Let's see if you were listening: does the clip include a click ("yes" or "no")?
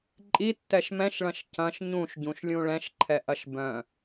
yes